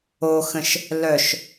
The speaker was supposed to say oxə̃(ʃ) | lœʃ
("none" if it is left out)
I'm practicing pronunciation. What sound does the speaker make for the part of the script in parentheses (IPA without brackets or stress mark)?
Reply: ʃ